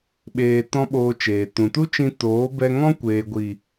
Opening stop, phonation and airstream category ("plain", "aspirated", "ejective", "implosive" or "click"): implosive